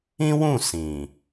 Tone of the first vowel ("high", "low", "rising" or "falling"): high